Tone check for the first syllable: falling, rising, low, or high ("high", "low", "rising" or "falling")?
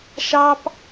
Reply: high